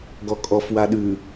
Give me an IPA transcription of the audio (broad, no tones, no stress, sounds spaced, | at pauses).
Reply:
ɡ ɔ kʼ ɔ f w a ɗ ʉ